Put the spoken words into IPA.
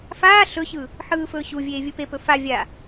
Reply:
f aː ɬ ɵ ɕ ɯ | ħ ɯː f ɵː ɕ u vʲ eː vʲ ɯ p e p ɵ f a vʲ a

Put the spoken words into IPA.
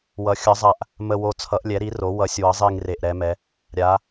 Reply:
w ʌ˩˧ xʲ ʌ˩˧ zˤ a˨˩ ʔ | m ə˨˩ w o˨˩ t͡sʰ ʌ˩˧ ʔ lʲ ɛ˩˧ ɾ i˩˧ r o˩˧ w ʌ˩˧ sʲ w ʌ˩˧ zˤ i˨˩ ŋ r e˨˩ ʔ ɾ ɛ˩˧ m ɛ˩˧ | ɾʲ a˩˧

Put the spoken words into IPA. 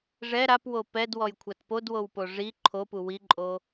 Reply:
ʐ ɛ ɾ a p w o p ɛ d w ɔ j kʷʰ a t p o d w o w p o ʐ i ǃʰ o p u w i ǃʼ o

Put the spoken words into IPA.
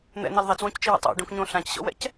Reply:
n̪ ɛ̰ n e l ðˤ i t͡s w õ c t͡ʃ i w a̰ tˤ ɔ̰ ɖ õ k ɲ õ ɬ ã c ɕ ɔ̰ w ɛ̰ c

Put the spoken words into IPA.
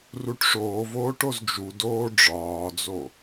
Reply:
r u ʈ ʂ oː v oː ʈ o z d͡ʒ u d oː ɖ͡ʐ ɒː d͡z o

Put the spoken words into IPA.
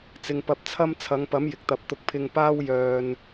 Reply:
t͡s ɪ˧ ŋ p ɐ˧ p̚ t͡sʰ ɐ˥ m t͡sʰ ɐ˨˧ ŋ p ɐ˨˥ m j ɪ˨ k̚ t̪ ɐ˧ p̚ t̪ ʊ˧ k̚ pʰ ɪ˧ ŋ p aː˥ w j œː˨ n

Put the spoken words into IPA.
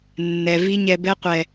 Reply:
nː ɛ˨ v i˦ ɲ ɛ˧ b ɛ˦ qʷ ɛ˨

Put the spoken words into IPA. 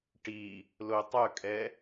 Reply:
ʈ i | l o tˤ œ kʼ ɛ

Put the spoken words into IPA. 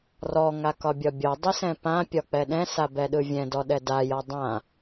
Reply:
r ɔ ŋ a k ɒ bʲ ɒ bʲ ɒ dˤ i s ɛ̃ p ã pʲ ɒ k͡p ɛ ɗ ɛ̃ s a b ɛ ɗ ɯ vʲ ɛ̃ d ɔ ɗ ɛ d a j ɒ dˤ ã

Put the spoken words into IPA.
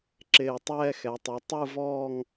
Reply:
ǁ ɪː˧˩ tˤ ɛː˥˧ x ɛ˩˧ tˤ i˩˧ tˤ ɯ˥˧ v ɔː˥˧ ŋ

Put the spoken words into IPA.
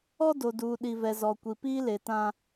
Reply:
ɔ˦ d o˨ d uː˨ ɗ i˨ v ɛ˨ z ɔ˨ kʷ i˨ p iː˦ l e˨ t ã˦

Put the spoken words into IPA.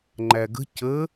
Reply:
ŋ͡ǃ æ ɡ ə̤ c ə

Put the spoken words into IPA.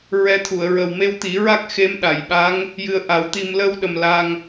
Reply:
ɹ ɛ˧ t̪ʰ u˨˩˨ ə̯ ɹ ə˨˩ w m e˧ w t̪ i˨˩˦ ɹ a˦˥ k̚ x e˧˥ m ɗ a˨˩˨ j ɓ a˧˥ ŋ | j ɨ˧ ə̯ ʔ a˨˩˦ w t̪ i˧ m l ə˧ w ɗ ə˨˩ m l a˧ ŋ

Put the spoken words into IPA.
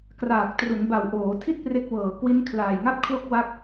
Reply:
k r aː˨˩ k̚ t r u˩˦ n b a˨˩ w ʔ oː˩˦ tʰ i˥˩ t̚ p r e˦˥ k̚ w ɤː˨˩ k w i˦˥ n kʰ l aː˨˩ j ŋ a˥˩ p̚ kʰ l o˥˩ k̚ w a˦˥ k̚

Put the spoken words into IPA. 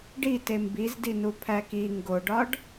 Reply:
ɖ i t e m b i z d i n u pʰ æ k i ŋ ɡ o ɖ ɒ ɖ

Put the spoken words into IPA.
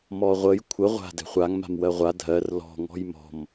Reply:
m ɔ ʁʷ ə j kʷʰ ə ʁʷ a̤ d ɛ̤ χʷ a ŋ m a̤ m w ɜ ʁʷ a dʱ ɜ r l ɔ̤ ŋ ɔ̤ j m ɔ̤ m

